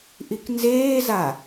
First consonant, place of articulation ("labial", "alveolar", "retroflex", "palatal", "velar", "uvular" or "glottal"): glottal